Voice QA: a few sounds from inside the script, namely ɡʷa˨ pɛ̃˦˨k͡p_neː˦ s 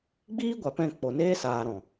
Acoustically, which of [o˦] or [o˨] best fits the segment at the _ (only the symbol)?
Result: o˨